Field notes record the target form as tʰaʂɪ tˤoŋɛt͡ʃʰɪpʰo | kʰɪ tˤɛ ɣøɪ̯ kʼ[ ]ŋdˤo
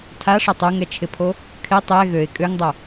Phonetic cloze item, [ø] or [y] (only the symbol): ø